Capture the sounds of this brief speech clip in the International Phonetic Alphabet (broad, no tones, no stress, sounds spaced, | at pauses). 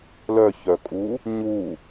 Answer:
l œ ç œ kʼ u | ɲ u